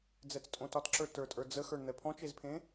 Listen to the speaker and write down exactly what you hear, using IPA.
d͡z ɛ t͡s tʼ õ t ɒ t ǁ ə˞ t ə˞ tʼ ə˞ d͡z ə x ə˞ ɳ n̪ ɛ pʰ ɔ̃ t͡ʃ e z pʰ ẽ

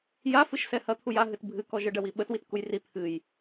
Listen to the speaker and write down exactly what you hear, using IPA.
j a f ɨ ʃ s ɛ h ɐ t̪ʰ u j a ɦ ɨ t bʱ ɨ k ɔ ʒ ə ɖ ɐ w i ɓ ə t w i t k u j r i t̪ʰ ɨ j

